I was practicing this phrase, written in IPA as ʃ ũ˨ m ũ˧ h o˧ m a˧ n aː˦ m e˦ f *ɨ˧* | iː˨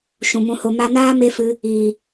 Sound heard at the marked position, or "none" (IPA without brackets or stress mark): ɨ˧